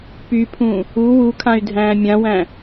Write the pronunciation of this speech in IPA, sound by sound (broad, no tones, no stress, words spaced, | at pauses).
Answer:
pypʰũ | u wukʰãy̯ dʱæ̃ːmʲãwæ̃